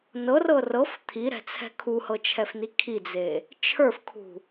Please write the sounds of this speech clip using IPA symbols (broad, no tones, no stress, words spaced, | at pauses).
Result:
nɤrɤ rɤf t̪ʰiɾɛ̤t͡sʰɛ̤ kʰuhɤt͡ʃʰɛfni kʰid͡ze | t͡ʃʰə˞fkʰṳ